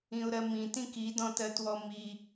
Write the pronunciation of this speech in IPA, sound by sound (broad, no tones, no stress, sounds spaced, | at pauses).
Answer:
ĩ ʊ̯ ɾ ɜ m ĩ t ĩ k i d ɔ̃ t ɜ t w ɔ m i